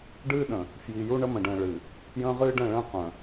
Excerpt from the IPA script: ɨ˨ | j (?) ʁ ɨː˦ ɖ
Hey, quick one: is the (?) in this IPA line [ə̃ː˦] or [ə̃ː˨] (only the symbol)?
ə̃ː˦